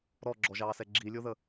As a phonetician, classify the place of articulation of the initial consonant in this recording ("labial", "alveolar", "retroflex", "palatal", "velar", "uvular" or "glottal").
alveolar